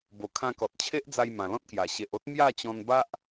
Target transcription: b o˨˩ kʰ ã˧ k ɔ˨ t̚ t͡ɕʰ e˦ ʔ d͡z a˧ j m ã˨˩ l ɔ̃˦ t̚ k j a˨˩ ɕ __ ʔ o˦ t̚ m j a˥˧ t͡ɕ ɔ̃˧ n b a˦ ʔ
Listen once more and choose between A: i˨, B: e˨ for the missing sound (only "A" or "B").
B